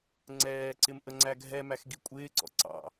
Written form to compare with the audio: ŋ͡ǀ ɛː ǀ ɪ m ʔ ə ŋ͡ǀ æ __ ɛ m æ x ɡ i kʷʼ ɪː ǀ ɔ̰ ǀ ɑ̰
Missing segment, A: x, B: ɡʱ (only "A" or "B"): B